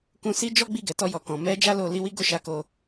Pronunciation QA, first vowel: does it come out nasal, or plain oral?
nasal